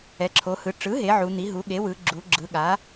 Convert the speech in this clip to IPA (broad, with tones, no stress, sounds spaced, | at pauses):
ɛ˩˧ ǁʰ o˩˧ h ɯ˩˧ ʈ͡ʂ ɯ˩˥ ɦ e˩˧ ʕ u˩˧ n̪ i˩˥ ɦ u˩˥ ɠ e˩˥ w ɯ˩˧ ɡ͡ǁ u˩˧ ɡ͡ǁ ɯ˩˧ ɠ a˩˥